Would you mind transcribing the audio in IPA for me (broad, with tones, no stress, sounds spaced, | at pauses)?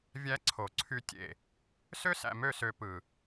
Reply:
vʲ æ˦ ǀʰ o˨ ǀʰ y˦ tʲ ḛ˨ | s ø˦ s æ̰˨ m ø˦˨ s ø˨ p ɯ˨